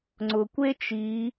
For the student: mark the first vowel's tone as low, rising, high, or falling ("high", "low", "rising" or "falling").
low